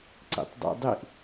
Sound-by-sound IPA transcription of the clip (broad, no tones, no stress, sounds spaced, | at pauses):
ǀ ḭ tˤ dˤ ḭ dˤ i ʔ